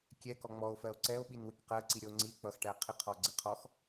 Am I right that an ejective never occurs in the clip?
yes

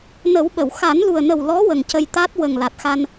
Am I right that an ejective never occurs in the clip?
yes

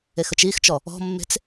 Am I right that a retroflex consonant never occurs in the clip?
yes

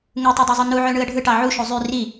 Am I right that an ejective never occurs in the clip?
yes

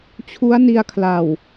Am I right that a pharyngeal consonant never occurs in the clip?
yes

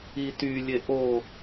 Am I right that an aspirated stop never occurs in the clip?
yes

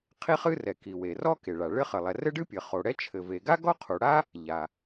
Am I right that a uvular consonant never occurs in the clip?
no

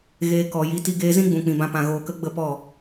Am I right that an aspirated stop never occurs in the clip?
yes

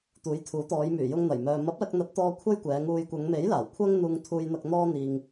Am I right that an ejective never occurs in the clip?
yes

